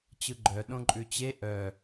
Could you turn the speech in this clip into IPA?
t͡ɕ ɯ ɡ͡ǃ œ ɗ õ ǃʼ ʉ t͡ɕ e ʔ œ

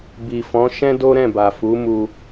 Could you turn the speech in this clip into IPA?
b i˨ f ɔ̃˨˦ ʃ ɛ̃˦ d o˦ ɾ ɛ̃˦˨ b a˨ f u˨˦ m u˧

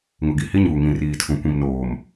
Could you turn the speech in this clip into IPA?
ŋ ʊ˨ ɡ i˨ h i˦ ɲ uː˨ ŋ ĩ˨ r iː˨ tʰ ũ˨ kʷ ĩ˨ m n oː˨ m

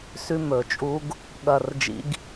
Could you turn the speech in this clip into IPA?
s ʉ˦˥ m ɵ˨˩˦ t͡ʃʼ u˦˥ ɡ | ɠ ɐ˦˨ r d͡ʒ ḭ˦˥ ɡ

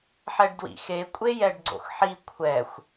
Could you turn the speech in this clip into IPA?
ħ ɛ ɖ d w ḭ x e kʷʼ e j ɛ ɖ ɡ͡ǀ o̰ x ħ i kʷʰ ɛ xʷ

